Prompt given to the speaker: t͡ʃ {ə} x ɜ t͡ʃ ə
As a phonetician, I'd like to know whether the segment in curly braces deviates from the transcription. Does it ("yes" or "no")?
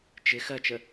yes